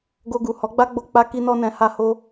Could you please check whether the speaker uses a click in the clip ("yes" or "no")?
no